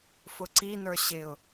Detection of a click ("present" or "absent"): present